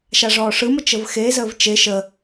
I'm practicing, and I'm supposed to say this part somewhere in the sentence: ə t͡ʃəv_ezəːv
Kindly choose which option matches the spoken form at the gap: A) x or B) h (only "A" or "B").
A